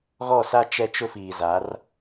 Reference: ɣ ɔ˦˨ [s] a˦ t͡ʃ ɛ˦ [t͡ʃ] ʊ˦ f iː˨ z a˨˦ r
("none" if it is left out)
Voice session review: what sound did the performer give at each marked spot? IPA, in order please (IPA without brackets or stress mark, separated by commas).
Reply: s, t͡ʃ